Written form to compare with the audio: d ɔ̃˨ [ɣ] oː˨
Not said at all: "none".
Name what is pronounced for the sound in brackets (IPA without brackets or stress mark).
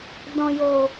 j